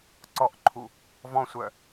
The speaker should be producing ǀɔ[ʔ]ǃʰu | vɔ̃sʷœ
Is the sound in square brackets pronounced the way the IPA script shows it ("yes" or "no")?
yes